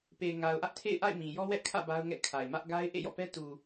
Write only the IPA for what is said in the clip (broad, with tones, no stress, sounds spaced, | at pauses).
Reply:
p e˨ ɪ̯ ŋ a˨ ʊ̯ ʔ ä˦ ʔ tʰ ḛ˦˨ ɪ̯ ʔ a̰˦˨ ɪ̯ m ĩ˨ j ɔ˦ w ɛ˦ ʔ kʰ ä̰˦˨ b a˦ ʊ̯ ŋ ɛ̰˦˨ kʰ a˨ ɪ̯ m ä˦ ʔ ɡ a˦ ɪ̯ ʔ ḛ˦˨ j ɔ̰˦˨ p ɛ˦ t u˨